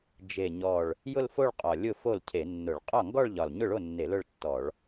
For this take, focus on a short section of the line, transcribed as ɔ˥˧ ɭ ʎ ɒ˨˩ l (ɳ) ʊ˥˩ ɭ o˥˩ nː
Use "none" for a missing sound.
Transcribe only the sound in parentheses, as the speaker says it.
ɲ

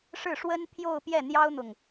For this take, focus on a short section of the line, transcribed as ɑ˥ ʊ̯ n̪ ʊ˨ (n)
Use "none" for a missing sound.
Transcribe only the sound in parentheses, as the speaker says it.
ŋ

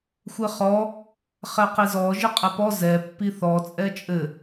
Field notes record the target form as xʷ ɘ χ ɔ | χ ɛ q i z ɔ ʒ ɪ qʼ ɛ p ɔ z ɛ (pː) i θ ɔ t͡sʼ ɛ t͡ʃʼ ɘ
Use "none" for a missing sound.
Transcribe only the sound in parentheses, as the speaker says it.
pː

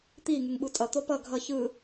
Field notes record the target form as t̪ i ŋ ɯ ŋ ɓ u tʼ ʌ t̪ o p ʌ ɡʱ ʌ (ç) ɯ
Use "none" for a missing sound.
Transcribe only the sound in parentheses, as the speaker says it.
ç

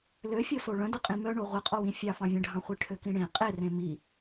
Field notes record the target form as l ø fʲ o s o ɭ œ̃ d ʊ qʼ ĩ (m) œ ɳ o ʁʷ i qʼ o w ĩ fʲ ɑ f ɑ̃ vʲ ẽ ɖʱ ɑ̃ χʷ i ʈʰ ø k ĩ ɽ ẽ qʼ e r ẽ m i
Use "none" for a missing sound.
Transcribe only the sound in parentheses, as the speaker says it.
m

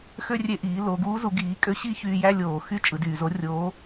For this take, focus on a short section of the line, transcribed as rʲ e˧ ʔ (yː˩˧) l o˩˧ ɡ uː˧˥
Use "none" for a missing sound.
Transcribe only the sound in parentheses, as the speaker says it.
iː˩˧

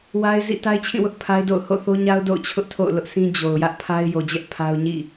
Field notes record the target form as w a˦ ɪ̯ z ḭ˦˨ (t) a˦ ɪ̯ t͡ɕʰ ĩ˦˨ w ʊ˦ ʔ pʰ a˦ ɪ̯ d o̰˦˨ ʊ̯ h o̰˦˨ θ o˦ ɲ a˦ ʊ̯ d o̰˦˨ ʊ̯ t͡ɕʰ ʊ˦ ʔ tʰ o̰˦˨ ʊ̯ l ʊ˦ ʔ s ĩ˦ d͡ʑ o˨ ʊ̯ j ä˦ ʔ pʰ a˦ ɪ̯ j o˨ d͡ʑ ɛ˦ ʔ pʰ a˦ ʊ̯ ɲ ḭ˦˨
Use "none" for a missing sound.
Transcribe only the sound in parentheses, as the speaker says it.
t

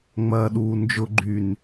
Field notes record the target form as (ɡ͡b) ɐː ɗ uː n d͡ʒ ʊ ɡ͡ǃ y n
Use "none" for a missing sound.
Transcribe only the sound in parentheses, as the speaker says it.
ŋ͡m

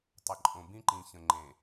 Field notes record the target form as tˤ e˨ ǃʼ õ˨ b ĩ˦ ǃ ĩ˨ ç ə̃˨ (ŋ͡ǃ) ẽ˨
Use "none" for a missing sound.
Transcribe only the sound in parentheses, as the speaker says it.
ŋ͡ǃ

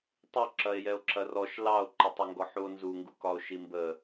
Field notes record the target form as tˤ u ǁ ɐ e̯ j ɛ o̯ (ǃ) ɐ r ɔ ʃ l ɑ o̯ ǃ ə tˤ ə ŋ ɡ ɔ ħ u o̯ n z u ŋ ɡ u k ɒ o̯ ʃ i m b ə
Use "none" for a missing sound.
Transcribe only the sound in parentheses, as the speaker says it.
ǁ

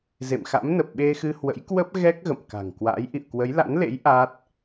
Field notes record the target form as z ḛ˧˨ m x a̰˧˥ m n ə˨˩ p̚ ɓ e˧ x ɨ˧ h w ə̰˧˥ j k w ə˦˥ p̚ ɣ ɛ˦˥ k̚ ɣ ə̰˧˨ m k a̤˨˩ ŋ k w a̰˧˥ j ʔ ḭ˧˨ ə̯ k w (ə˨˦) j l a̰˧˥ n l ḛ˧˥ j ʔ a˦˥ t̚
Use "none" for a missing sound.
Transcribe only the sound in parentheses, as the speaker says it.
ə˨˦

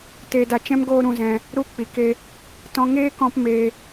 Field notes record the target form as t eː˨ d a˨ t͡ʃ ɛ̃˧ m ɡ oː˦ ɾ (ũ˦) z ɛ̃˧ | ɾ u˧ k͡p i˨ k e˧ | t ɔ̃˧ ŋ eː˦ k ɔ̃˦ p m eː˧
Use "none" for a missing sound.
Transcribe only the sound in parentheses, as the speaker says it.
ũ˧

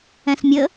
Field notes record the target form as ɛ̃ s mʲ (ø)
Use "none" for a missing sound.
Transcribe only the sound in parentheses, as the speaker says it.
ə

